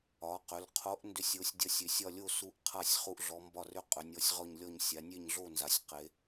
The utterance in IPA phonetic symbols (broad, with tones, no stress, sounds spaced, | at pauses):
ɒ˩˧ q ʏ˩˧ l qʰ o˨˥ ʔ n d ʏ˦ sʲ o˨˥ sʲ dʲ ɒ˦ sʲ ʏ˩˧ sʲ ɒ˥˨ lʲ o˥˨ s u˨˥ ʔ qʰ a˥˨ sʲ χ u˦ ʔ ɮ ɔ˨˥ m b ɒ˥˨ r ʏ˥˨ qʼ ʏ˩˧ nʲ ɔ˨˥ sʲ ʁ ɔ˥˨ ɲ lʲ ɔ˥˨ ɲ sʲ a˩˧ nʲ e˥˨ ɲ ɮ o˥˨ n z a˩˧ sʲ q e˩˧